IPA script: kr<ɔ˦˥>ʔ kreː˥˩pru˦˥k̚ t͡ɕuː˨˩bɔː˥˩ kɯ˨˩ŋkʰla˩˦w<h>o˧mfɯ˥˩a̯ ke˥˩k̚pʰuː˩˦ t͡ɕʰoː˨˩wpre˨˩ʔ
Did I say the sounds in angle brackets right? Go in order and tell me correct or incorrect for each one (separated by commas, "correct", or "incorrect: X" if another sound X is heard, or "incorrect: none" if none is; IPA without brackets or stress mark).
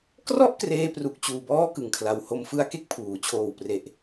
incorrect: ɔ˥˩, correct